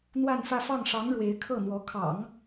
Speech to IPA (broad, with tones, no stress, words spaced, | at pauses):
n̪wa˥˧nfä˥˧fɑ˥˩ŋ ʂɑ˧˥ŋ ɻwe˧˥ɪ̯ kʰɤ˥˩n̪wɔ˧˥ kʰɑ̰˨˩˦ŋ